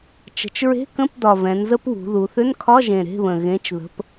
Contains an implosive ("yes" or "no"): no